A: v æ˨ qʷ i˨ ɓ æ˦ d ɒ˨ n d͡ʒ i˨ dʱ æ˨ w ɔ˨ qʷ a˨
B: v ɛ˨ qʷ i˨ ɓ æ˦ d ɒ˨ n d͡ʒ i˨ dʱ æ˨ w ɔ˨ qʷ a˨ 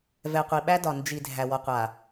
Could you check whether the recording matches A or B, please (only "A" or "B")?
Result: B